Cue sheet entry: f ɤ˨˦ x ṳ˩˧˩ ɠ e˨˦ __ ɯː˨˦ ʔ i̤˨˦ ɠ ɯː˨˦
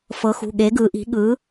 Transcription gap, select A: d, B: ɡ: B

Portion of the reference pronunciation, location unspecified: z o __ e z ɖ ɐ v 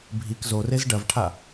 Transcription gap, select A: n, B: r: B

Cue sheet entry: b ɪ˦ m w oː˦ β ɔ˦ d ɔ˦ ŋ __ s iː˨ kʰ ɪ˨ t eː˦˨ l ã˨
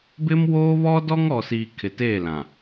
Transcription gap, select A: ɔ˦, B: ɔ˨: B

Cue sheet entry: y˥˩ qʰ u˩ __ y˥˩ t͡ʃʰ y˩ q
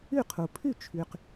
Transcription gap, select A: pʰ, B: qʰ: A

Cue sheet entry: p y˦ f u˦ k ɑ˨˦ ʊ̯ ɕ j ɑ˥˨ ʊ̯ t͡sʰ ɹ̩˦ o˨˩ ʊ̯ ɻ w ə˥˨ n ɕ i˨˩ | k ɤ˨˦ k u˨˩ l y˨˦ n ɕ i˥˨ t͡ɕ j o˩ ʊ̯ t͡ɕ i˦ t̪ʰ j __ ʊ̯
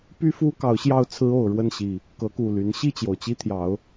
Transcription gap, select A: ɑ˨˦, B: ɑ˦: A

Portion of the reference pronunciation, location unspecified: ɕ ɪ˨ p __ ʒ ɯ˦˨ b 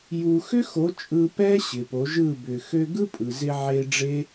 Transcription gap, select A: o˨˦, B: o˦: A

